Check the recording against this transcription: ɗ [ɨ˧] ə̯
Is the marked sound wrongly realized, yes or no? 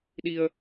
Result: yes